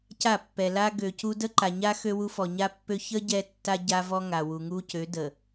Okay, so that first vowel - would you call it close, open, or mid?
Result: open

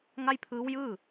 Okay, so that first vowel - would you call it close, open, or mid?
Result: open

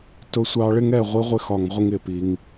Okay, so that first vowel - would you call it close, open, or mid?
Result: close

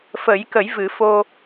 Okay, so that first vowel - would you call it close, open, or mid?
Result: mid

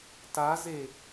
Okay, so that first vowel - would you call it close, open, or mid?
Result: open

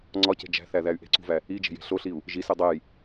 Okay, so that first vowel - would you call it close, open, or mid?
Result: open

